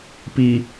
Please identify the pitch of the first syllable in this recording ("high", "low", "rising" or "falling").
low